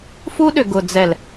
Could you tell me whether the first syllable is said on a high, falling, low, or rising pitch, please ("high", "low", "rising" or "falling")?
high